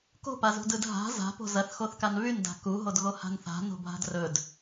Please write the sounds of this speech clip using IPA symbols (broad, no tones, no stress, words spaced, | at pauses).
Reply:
ko̤pazṳdɯd ɦa̤ za̤po̤ zɐθxoθkan βynda̤ kuɦodɣoha̤n θa̤no̤bʱa̤d rɵd